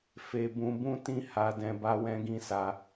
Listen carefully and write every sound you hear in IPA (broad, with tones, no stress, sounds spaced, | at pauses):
f e˧ b ũ˧ b ũ˦ t ĩ˦ h a˧ d ɛ̃˧ b a˦ w ɛ̃˦ ɡ ĩ˦ s a˧